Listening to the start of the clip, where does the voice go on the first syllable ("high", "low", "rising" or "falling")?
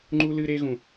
high